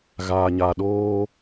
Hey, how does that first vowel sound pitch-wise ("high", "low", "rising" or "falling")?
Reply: low